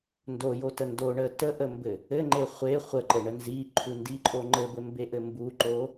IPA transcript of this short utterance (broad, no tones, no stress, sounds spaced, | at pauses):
n d o j o t ə n d o ɳ ə t ə ʔ ə m b ɘ | ɘ ŋ͡ǃ e χʷ e χʷ ə ǃ ɘ ɳ ə n z i ǃʰ u n d i ǃʼ o ŋ͡ǃ ɘ b ɘ m b e ʔ ɘ m b u ǃ o